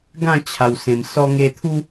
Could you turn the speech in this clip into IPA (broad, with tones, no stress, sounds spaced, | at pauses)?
ɡ ã˥˧ t͡ɕʰ a˨˩ w s ẽ˨˩ m s ɔ˧ ŋ e˧ t̪ʰ u˦